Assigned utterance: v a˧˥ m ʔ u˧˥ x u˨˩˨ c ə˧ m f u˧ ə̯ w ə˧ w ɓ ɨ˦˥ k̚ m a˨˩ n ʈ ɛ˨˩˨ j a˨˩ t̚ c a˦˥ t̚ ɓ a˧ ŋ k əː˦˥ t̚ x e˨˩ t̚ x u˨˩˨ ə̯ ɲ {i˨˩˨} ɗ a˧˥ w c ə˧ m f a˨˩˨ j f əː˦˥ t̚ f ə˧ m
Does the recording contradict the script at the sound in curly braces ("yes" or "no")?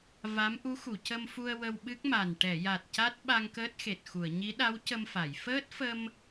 yes